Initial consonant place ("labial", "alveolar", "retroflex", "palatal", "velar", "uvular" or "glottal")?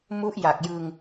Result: labial